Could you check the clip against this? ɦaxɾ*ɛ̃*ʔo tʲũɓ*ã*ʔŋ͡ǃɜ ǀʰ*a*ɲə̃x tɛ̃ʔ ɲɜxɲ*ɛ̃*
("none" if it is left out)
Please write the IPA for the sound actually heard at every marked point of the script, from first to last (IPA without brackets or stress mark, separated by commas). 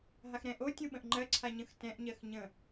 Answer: ɛ̃, ə̃, a, ə̃